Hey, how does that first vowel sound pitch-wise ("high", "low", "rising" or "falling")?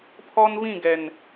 high